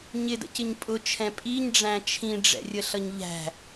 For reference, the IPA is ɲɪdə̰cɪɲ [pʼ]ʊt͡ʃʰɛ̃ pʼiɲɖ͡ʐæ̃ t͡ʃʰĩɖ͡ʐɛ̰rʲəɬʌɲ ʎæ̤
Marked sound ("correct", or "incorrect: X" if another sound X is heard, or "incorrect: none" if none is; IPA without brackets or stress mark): correct